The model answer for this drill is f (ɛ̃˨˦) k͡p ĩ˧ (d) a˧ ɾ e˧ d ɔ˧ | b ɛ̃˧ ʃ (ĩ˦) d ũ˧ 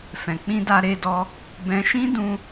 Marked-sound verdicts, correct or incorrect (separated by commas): incorrect, correct, correct